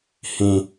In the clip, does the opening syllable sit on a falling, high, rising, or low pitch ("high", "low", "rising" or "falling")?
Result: high